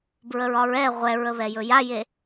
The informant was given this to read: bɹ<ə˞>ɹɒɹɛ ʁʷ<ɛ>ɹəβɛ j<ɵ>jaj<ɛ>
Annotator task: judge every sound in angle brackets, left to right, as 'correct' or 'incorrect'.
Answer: incorrect: ə, correct, correct, incorrect: e

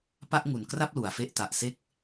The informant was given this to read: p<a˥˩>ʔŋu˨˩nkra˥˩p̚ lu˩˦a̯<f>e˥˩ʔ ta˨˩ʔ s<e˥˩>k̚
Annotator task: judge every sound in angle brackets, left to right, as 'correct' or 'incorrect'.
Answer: correct, correct, correct

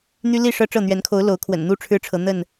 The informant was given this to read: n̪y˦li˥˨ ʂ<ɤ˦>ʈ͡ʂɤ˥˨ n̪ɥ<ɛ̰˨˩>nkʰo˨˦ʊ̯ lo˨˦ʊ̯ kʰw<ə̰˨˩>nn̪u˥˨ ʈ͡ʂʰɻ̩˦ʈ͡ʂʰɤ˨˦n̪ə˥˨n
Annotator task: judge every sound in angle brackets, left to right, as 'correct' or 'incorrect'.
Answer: correct, incorrect: ɛ˨˦, correct

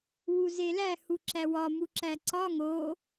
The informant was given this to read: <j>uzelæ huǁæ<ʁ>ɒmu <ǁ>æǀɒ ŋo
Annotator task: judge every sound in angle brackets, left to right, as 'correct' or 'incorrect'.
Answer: incorrect: w, incorrect: w, correct

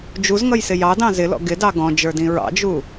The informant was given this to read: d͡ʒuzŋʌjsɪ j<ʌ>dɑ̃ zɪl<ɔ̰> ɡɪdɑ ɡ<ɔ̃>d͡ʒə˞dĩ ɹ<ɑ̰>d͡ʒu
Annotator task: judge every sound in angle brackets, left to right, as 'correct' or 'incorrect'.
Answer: incorrect: ɑ, correct, correct, correct

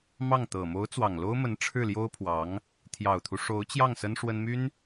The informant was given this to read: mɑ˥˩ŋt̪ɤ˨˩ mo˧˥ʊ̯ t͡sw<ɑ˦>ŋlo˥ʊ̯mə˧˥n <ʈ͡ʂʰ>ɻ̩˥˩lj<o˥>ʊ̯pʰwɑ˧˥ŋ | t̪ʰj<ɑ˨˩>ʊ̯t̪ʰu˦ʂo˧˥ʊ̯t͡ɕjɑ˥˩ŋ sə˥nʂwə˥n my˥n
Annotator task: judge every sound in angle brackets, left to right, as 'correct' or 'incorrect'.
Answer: incorrect: ɑ˨˩, correct, correct, correct

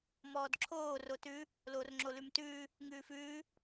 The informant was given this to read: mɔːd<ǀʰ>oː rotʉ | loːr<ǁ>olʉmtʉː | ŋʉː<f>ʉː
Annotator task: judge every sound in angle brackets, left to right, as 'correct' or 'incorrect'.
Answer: incorrect: ǁʰ, incorrect: ŋ͡ǁ, correct

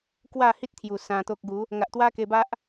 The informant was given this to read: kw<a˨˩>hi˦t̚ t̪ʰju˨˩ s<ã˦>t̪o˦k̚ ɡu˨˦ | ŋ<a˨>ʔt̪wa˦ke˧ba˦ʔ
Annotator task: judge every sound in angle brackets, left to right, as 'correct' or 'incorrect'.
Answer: incorrect: a˥˧, incorrect: ã˧, correct

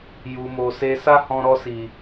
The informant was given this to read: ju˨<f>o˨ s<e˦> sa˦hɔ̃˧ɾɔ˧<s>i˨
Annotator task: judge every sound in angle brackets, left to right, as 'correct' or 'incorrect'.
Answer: incorrect: m, incorrect: e˧, correct

